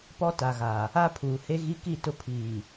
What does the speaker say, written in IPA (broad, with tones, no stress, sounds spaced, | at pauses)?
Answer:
p ɔ˦ t a˨ ɣ a˨ | a˦ pʰ uː˨ h e˦ ɣ i˦ k i˦˨ t ʊ˦ pʰ iː˨